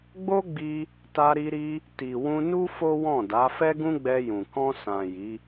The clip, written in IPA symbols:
ɡ͡b o˦ ɡ͡b i˧ | t a˧ ɾ i˧ ɾ i˧ | t i˨ w ũ˧ n u˦ f o˦ w ɔ̃˦˨ d a˨˦ f ɛ˦ ɡ ũ˦ ɡ͡b ɛ˧ j ũ˨ k ɔ̃˧ s ã˨ j i˨˦

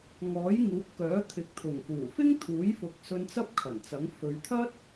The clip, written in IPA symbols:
ŋ ɔː˨˥ j ŋ uː˨˥ p̚ k œː˨˥ t̪ʰ ɪ˨˥ k̚ t̪ʰ ʊ˨˩ ŋ f uː˨˩ f ɪ˥ ŋ t̪ʰ uː˨˥ j f ʊ˨ k̚ s ɵ˧ n t͡s ɐ˥ p̚ kʰ ɐ˨˩ n t͡s ɐ˨˥ ŋ f ɵ˨˧ ɥ t̪ʰ ɐ˥ t̚

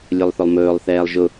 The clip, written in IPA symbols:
lʲ ʊ lˠ θ ʊ lˠ m ɵː lˠ θ ɛː lˠ ʒ ʊ

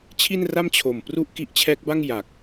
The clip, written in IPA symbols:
t͡ɕʰ i˥˩ n r a˥˩ m t͡ɕʰ o˨˩ m p r u˥˩ ʔ k i˦˥ ʔ t͡ɕʰ ɛː˦˥ k̚ b a˥˩ ŋ j a˨˩ k̚

